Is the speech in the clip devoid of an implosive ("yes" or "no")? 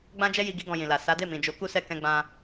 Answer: yes